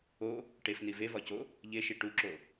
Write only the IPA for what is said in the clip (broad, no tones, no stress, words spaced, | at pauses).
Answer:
o | ʈefni vevɒco | ʎeʃi ʈuǁo